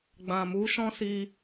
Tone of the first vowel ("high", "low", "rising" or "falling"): low